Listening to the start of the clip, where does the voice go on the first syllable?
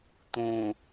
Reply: low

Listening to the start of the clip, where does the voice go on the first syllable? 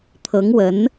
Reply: rising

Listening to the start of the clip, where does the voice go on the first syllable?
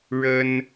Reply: high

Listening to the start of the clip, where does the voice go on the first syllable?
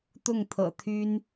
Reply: falling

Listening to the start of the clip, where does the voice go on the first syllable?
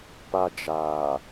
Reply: high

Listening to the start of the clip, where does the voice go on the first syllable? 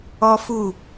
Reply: high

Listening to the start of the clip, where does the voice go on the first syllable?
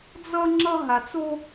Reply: high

